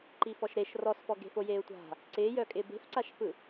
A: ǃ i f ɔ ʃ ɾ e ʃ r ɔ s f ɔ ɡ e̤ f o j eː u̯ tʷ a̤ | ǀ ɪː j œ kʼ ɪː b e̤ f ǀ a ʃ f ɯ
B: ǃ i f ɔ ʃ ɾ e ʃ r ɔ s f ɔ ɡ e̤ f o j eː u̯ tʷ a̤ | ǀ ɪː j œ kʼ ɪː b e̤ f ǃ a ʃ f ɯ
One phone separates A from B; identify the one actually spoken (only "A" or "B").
A